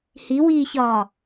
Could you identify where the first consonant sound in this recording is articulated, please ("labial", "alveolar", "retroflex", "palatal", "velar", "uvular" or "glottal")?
glottal